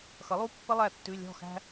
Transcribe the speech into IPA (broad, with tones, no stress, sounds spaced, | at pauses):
x ʌ˩˥ lˠ u˧˥˧ pː ə˥ lˠ æ˥˩ tː ʉ˧˥˧ lʲ ɔ̤˥˩ x æ̤˥